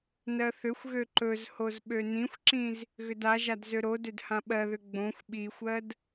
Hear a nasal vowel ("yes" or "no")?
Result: yes